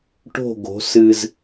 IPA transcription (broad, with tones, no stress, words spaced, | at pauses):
ʈo̤˦˨ɡo̤˨˦ sɨ˨z